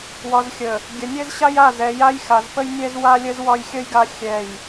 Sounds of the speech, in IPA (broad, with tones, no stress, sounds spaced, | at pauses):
w ɒ˨ z xʲ ə˨ | ɡʲ ə˨ nʲ ɛ˦ z ɕ a˦ j a˦˨ z ɛ˨ j a˦ j x a˨ z p ə˦ j nʲ ɛ˦ z w a˦ lʲ ə˦ z w ɒ˦ j xʲ ə˦ j ɡ a˦ xʲ ɛ˦˨ j